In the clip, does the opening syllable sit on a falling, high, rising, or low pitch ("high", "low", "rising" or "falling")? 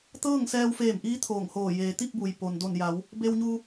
falling